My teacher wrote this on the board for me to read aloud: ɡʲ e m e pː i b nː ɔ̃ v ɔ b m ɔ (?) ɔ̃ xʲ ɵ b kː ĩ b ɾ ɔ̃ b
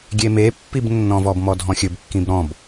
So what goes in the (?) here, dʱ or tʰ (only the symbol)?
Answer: dʱ